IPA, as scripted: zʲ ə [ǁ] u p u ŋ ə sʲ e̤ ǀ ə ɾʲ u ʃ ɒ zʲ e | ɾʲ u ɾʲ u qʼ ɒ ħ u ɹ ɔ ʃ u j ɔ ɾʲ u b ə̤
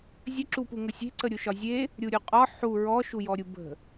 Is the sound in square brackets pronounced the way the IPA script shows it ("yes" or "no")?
yes